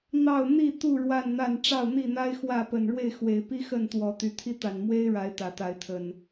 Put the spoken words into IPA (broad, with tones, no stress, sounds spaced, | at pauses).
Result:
n̪ ɑ˥˨ ʊ̯ n̪ i˥˨ t̪ u˥˨ ɻ w a˥˨ n n̪ a˥˨ n ʈ͡ʂ ɑ˥˨ ʊ̯ n̪ i˥˨ n̪ a˦ ɪ̯ x w ä˥˨ p ə˨˩ n ɻ w e˥˨ ɪ̯ x w e˨˩ ɪ̯ p i˦ x ə˥˨ n t̪ w ɔ˨˦ t̪ y˨˩ t̪ʰ i˦ t̪ a˨˩ n m w e˦ ɪ̯ ɻ a˨˦ ɪ̯ t̪ ä˨˩ t̪ a˨˦ ɪ̯ t̪ʰ ə˨˩ n